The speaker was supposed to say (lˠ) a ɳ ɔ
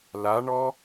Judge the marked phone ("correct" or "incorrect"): incorrect